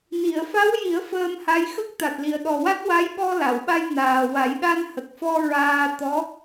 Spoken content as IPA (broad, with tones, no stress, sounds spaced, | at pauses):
n i˨˩˨ ə̯ f a˧˥ w j i˨˩˦ ə̯ f əː˧ m h a˧˥ j x ə˦˥ k̚ t̪ a˨˩ t̚ l i˨˩ ə̯ ɗ ɔ˨˩ w a˦˥ t̚ w a˧˥ j ɓ ɔ˧ l a˨˩˨ w ɓ a˧ j n aː˨˩ w a˨˩˦ j ɗ a˧ n h ə˨˩ k̚ f ɔ˧ ɹ aː˧ t̪ ɔ˧˥